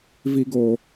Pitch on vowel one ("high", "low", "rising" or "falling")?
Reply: low